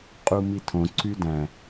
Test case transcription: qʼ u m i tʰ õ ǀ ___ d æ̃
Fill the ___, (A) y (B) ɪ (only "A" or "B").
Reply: A